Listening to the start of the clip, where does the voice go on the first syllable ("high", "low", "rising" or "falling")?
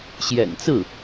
low